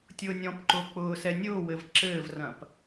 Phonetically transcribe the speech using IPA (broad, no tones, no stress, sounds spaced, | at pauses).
tʲ ʊː nʲ ɔ̃ p ǃ ʊː k͡p ʊː s ɛ nʲ ʊː w ɘ v ǁ ɘː v r ɐ̃ p